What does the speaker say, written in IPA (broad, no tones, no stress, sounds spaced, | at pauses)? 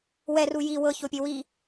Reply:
w ɛ r u j i w ɤ ç o pʲ e w i